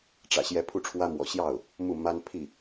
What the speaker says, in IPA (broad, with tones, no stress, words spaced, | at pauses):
ʈ͡ʂä̰˨˩ɕjɛ˧˥ pʰu˥˩ʈ͡ʂʰwä˥mwɔ̰˨˩ ɕjɑ˥˩ʊ̯ | mu˥˩ma˥n pʰi˥˩